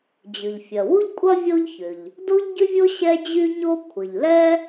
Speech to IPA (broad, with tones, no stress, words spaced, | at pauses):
d͡ʑʏ˩ʎfʲɐ˩wu˥ʎkʷʼɐ˥ vʲo˥ʎçʏ˩ʎ | do˥ʎɟʏ˥vʲo˥ ɕɛ˥d͡ʑy˥ɲo˥ kʷʰə˩ʎlɛ˥